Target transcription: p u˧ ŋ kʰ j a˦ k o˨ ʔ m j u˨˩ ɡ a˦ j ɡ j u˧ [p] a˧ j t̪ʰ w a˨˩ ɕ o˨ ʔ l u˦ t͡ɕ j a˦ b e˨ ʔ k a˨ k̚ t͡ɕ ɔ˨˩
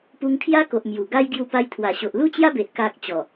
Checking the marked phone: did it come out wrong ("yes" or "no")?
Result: no